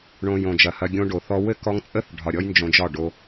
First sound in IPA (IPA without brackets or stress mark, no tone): ɳ